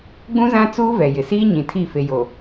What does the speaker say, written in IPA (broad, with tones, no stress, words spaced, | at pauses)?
ɡ͡bũ˦zã˦t͡suː˦ vɛ˨jɪ˨ siː˦ɲĩ˨tʰi˦˨ fe˨jo˨